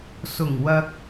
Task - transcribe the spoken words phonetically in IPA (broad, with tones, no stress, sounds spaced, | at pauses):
s ʊ˨˩ ŋ w ɐ˨ k̚